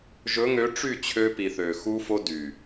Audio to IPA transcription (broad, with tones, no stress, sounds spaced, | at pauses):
ʒ ɵ˨˦ ŋ ø˨˦ ʈ͡ʂ y˦˨ t͡ɕʰ ø˧ p i˨ θ ø˨ x u˧ f o˧ d y˨